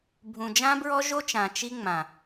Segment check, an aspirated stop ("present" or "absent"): absent